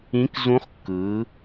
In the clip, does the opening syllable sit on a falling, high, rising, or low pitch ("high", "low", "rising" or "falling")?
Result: rising